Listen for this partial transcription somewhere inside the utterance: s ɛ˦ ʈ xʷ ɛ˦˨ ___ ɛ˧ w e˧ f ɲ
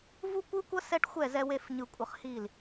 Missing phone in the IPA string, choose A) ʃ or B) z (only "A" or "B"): B